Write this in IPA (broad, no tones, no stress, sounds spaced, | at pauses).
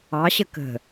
ɑ ɕ ə k ə̤